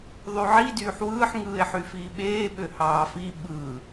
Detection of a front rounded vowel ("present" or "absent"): present